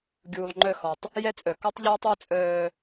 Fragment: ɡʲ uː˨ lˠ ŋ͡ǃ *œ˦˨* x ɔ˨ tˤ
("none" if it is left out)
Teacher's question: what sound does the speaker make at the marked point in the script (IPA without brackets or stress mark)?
œ˦˨